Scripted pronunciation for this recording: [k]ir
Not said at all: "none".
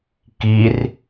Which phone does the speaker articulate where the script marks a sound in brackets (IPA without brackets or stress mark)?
k